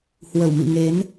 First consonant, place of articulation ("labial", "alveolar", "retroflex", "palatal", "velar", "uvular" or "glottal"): glottal